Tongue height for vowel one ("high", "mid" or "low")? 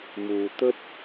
high